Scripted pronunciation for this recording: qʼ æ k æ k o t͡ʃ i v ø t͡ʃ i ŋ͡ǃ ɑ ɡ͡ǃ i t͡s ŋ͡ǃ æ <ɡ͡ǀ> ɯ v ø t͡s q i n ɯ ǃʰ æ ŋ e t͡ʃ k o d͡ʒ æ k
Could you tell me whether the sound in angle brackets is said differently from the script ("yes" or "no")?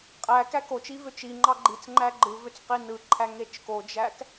yes